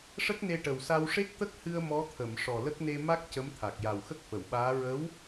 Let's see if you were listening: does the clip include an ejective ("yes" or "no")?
no